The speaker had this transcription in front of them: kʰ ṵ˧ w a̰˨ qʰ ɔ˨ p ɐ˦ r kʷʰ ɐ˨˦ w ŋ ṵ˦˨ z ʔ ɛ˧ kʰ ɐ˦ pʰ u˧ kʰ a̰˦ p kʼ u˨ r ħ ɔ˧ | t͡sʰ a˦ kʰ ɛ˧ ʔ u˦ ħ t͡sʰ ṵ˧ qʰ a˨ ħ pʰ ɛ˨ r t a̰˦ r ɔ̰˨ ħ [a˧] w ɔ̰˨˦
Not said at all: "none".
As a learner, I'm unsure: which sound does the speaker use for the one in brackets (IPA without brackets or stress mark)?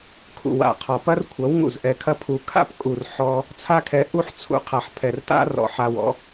a˧